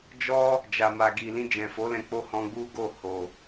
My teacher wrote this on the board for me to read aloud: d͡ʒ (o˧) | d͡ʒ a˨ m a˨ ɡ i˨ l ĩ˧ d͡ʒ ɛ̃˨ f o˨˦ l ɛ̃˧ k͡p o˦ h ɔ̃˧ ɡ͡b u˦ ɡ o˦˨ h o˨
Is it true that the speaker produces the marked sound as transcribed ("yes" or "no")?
no